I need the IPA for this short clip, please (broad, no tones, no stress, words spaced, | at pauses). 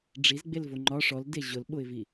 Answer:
ɖ͡ʐizɡ͡belvo ŋ͡ǃɒ ʂɔlde ʑʊlɓʊɪ̯vi